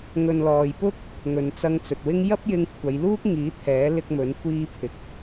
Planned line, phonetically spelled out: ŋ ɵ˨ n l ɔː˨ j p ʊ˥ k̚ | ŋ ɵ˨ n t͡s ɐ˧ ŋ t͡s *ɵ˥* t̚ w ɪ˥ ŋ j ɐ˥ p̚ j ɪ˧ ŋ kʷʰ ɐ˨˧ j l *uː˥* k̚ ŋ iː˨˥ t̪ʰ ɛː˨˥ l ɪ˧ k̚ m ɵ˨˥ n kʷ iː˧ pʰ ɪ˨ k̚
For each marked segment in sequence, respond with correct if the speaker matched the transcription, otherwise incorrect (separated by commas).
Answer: incorrect, correct